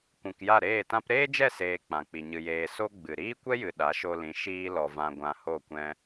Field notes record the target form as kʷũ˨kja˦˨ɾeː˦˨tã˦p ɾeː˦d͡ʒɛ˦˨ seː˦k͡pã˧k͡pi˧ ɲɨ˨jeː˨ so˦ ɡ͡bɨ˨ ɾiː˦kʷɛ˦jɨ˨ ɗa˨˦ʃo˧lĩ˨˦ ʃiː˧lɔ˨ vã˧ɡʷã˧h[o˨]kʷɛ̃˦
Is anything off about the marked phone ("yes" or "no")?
yes